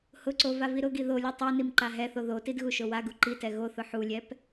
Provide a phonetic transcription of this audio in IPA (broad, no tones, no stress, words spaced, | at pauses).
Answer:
hʊǀo vaviɾʊɡi ðolʲu tˤonim ǃaɦɛθo ðotid ɣuʃowaɡu ǃitɛ ɣoθʊ ħulʲɛp